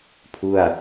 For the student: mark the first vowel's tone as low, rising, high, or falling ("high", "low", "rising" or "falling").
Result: falling